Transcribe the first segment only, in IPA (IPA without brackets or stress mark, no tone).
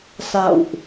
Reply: s